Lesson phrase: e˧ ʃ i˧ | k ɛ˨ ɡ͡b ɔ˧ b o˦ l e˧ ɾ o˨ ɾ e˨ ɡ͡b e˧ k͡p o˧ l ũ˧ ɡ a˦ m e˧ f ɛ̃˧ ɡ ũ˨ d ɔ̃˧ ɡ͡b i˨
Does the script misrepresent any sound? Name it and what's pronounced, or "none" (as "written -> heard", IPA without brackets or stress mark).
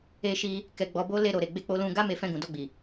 ɔ̃˧ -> ɔ˧